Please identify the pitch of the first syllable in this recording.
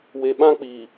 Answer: low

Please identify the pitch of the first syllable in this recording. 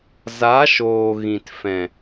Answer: rising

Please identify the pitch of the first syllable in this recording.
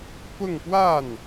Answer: falling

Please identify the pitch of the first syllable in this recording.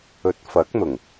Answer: rising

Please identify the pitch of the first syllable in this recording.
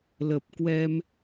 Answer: low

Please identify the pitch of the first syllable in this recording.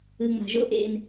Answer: low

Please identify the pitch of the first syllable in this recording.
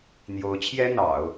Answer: rising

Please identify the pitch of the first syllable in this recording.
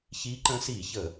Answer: rising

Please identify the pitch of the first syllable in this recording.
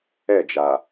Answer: falling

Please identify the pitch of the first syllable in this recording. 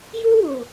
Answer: high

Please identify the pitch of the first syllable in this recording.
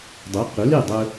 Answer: rising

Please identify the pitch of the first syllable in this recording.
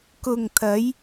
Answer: low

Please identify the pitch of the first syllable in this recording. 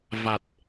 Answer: low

